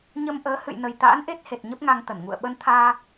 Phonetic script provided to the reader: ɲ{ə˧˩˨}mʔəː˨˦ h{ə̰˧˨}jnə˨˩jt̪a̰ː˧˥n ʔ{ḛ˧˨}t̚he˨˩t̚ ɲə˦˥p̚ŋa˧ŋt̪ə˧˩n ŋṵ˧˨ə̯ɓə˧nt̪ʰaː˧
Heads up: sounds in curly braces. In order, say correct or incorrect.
incorrect, incorrect, incorrect

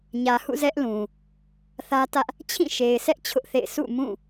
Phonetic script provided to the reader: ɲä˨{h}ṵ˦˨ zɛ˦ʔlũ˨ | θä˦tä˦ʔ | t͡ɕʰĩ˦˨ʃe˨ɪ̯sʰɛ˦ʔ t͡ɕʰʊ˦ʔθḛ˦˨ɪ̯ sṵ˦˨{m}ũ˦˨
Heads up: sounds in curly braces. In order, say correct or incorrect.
correct, correct

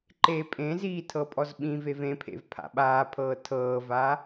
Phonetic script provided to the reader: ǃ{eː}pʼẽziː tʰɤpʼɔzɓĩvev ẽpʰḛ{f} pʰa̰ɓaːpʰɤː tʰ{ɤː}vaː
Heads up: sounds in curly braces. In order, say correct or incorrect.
correct, incorrect, correct

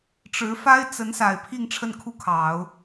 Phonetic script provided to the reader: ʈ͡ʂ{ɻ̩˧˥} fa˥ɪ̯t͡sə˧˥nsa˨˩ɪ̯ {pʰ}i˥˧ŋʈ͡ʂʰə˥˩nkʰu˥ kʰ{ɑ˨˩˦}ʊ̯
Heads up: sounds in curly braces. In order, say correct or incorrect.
correct, correct, correct

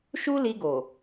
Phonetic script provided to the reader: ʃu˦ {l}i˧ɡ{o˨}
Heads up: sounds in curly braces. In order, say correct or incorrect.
correct, correct

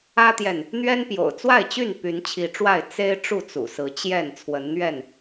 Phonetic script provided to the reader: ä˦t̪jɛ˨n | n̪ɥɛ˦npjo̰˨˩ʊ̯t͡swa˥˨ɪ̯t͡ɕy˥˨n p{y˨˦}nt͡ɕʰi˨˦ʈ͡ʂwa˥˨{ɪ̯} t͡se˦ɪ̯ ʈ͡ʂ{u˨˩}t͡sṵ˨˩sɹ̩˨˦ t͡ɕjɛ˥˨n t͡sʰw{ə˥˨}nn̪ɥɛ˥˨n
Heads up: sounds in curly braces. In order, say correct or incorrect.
correct, correct, incorrect, incorrect

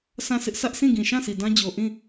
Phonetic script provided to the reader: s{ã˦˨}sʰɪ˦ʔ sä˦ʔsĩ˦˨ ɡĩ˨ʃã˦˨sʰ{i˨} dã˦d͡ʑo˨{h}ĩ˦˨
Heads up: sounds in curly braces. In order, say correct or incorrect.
correct, correct, incorrect

